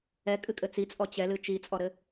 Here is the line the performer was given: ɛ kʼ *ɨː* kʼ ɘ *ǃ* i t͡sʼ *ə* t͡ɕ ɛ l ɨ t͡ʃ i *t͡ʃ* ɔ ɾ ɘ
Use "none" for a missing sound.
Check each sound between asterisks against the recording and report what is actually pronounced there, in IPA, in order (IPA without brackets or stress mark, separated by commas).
ɨ, t͡s, ɔ, t͡sʼ